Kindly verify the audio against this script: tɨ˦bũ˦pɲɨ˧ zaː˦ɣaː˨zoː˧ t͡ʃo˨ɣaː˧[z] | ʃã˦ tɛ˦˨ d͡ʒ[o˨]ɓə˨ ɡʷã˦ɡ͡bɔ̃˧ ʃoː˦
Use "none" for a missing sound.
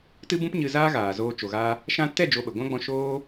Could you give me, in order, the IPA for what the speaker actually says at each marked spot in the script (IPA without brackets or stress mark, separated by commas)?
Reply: none, o˧